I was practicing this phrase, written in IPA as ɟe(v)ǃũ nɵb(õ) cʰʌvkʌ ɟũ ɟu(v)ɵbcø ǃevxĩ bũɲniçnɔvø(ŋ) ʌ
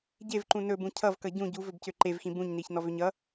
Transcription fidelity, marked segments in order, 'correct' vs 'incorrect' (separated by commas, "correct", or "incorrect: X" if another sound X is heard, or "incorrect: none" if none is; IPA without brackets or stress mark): correct, incorrect: ũ, correct, incorrect: ɲ